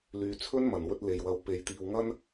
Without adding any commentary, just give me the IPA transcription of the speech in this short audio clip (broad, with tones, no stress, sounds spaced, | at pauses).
l yː˨ t͡sʰ ɵ˥ n m ɐ˨˩ n w ɵ˧ t̚ l e˨ j w ɐ˨˧ w p e˨ j t̪ iː˨ w ŋ ɐ˥ n